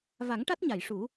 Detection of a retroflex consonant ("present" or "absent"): present